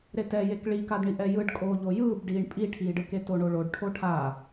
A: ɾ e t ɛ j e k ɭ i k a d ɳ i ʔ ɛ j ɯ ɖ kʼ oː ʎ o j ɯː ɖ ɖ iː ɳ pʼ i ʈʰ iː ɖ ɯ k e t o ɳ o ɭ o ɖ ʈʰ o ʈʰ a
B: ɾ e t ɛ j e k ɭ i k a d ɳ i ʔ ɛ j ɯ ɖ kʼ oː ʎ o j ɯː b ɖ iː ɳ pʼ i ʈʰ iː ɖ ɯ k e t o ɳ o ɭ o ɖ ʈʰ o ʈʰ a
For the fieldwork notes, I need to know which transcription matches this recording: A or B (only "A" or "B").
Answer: B